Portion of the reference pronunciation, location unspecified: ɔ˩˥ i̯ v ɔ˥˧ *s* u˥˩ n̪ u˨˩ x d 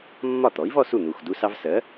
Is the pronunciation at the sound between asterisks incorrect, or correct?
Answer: correct